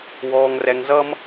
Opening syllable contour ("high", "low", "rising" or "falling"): low